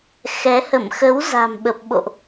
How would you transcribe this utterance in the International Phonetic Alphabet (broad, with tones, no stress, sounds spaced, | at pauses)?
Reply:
x ɛ˨˦ h ə˧˩ m x ə˨˦ w z a̤˨˩ m ɓ ə˨˩ p̚ ɓ o̰˧˨ ʔ